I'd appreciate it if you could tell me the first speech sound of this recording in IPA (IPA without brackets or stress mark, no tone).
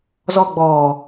z